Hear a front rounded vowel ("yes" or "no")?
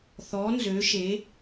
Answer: yes